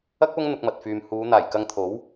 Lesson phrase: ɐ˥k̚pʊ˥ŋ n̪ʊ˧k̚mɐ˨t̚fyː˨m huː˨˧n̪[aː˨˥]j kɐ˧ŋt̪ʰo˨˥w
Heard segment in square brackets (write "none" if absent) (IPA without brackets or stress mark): aː˨˩